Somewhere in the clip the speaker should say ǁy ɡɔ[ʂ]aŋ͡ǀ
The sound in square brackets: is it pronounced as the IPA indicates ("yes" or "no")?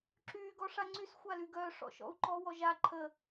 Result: yes